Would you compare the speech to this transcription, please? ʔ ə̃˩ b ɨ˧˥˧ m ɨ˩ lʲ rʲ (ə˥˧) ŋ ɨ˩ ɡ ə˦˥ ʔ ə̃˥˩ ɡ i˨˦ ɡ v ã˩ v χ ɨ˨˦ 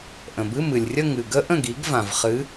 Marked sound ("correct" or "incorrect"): correct